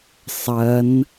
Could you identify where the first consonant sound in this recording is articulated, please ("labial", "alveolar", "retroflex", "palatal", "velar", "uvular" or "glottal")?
alveolar